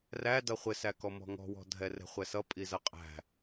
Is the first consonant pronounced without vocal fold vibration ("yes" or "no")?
no